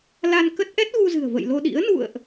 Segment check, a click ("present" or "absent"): absent